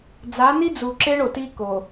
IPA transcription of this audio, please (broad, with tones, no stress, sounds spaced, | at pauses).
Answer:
d͡z a˨˦ n i˦ d͡z u˨ ǁ e˦ ɳ o˨ t i˦ k o˨